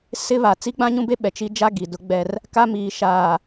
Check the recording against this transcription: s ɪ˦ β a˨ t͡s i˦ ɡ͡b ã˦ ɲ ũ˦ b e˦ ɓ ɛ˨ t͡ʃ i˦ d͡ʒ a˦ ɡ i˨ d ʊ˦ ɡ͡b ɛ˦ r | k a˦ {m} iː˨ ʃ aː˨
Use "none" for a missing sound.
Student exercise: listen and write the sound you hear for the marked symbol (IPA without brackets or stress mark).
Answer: m